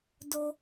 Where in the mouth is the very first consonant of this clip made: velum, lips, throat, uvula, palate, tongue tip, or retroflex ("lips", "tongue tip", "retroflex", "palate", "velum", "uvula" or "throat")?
tongue tip